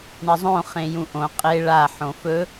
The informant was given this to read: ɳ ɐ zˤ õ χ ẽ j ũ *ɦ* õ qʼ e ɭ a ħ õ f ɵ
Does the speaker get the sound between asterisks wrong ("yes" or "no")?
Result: yes